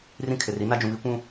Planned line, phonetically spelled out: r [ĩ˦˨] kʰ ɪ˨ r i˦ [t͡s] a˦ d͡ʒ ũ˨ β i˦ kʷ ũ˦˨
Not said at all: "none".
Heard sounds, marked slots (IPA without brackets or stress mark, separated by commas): ĩ˦, n